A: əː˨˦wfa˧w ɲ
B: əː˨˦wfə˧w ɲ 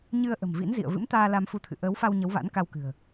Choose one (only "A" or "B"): A